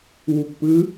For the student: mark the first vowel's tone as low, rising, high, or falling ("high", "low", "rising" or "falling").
low